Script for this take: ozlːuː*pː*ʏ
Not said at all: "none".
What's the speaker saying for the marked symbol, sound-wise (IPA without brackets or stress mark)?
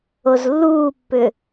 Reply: pː